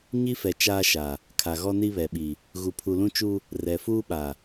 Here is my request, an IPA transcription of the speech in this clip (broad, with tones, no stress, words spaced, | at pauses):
ɲi˦fɛ˨ t͡ʃaː˦ʃa˨ | kʰa˨ɣɔ˦ni˦ βɛ˨ɓi˨ | ɣu˨pʰu˨lũ˦t͡ʃu˦ | rɛ˨fuː˦ɓa˨